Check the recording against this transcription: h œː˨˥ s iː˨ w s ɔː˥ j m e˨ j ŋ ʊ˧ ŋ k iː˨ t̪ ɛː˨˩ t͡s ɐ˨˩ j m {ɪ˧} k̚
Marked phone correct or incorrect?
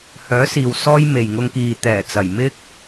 incorrect